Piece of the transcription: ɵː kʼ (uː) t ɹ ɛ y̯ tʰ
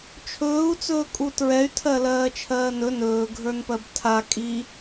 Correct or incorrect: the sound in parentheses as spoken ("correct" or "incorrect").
incorrect